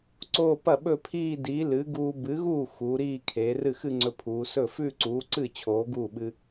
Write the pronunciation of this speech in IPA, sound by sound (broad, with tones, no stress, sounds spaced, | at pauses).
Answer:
ǀ oː˥˧ p ɐ˥˩ ɓ ɵ˥˧ pʰ iː˥˧ d iː˨˥ l ɨ˨˥ ɡ uː˧ b ɨ˨˥ ɣ uː˥˩ x u˩˧ ɾ iː˥˧ kʰ eː˩˧ r ɨ˥˩ x ɨ˥˧ ŋ͡ǀ ɵ˧ pʰ uː˩˧ s ɵ˥˩ f ʉ˥˧ ǀ uː˨˥ ǀ ɨ˥˩ t͡ɕʰ oː˨˥ ɡ uː˥˩ ɓ ɨ˧